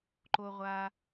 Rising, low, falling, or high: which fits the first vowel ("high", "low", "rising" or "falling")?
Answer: low